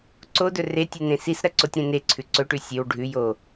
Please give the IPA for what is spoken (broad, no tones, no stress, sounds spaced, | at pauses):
ǀ o d ɵ r e tʲ ʉ n ẽ s i s ɾ ɐ ǀ o tʲ ɾ ẽ n e ǀʰ ʉ ǀ ɵ ʈ ʉ sʲ ɨ w ɖʱ ʉ j o